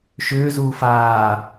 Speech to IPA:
ʃ ʏː z uː f aː

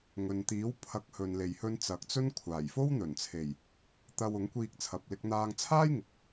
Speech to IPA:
ŋ ɵ˨ n t̪ iː˨˥ w pʰ ɐ˨˥ k̚ h ɵ˨ n l e˨ j h ɵ˧ n t͡s ɐ˨ k̚ t͡s ɵ˥ n kʷʰ aː˨˩ j f o˥ w n̪ ɵ˨˩ n t͡sʰ e˨˩ j | t̪ ɐ˧ w ʊ˨˥ ŋ kʷ iː˧ k̚ t͡sʰ ɐ˨ p̚ l ɪ˧ k̚ n̪ aː˧ ŋ t͡sʰ aː˥ j ŋ ɪ˨ k̚

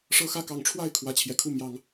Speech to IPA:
ʂ ɤ˦ x ä˦ k ɑ˨˩ ŋ ʈ͡ʂʰ w a˥˨ ɪ̯ kʰ w ä˨˦ t͡ɕʰ j ɛ˨˩ kʰ u˥˨ m j ɑ˨˦ ŋ

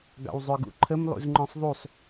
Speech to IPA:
ɡ ɑ̰ w zˤ œ ɡ ṵ ǃʰ ə m lˠ ṵ z ŋ͡ǃ ɔ̃ sˤ ðˤ u sˤ

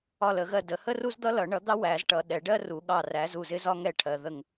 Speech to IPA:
ɒ˦˨ l ə˨˩˦ ɣ ɜ˦˨ d ə˨˩˦ h ə˥ r u˥ z d̪ ʌ˥ l ʌ˨˩˦ ɳ ʌ˨˥ d̪ ɑ˥ w æ˨˩˦ z ʈ ʌ˨ ɗ ɛ˨˩˦ ɖ ɜ˥ r u˨˩˦ ɠ ɑ˦˨ r æ˨˥ z u˦˨ z ɪ˥ z ɒ˥ ŋ ɛ˦˨ ʈʰ ɜ˨ ð ə˦˨ ŋ

